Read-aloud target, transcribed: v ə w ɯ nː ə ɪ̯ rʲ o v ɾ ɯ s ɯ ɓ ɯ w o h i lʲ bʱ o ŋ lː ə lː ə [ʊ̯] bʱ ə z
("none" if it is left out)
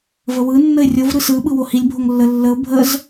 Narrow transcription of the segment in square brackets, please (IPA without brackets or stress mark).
ʊ̯